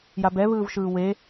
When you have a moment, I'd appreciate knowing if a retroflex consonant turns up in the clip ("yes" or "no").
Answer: no